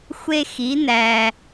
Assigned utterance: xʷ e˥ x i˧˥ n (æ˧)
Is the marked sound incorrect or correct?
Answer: correct